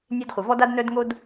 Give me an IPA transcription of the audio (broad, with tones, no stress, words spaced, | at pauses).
nʲe˥dχʷə˩ vɔ˥da˥d nœ˥dŋo˥d